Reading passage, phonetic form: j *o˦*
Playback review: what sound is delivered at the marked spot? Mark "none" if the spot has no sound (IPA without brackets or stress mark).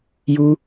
u˦